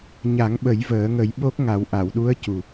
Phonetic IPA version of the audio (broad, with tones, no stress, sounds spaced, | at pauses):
ɲ a˨˩˦ ŋ ɓ ə˨˩˦ j v əː˨˩˦ ŋ ə˨˩˦ j ɓ o˦˥ k̚ ŋ a˨˩˦ w ʔ a˨˩˨ w ɗ u˧˥ ə̯ c u˨˩